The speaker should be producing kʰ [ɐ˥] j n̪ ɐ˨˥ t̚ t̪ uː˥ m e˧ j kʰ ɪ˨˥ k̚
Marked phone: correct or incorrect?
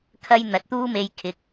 correct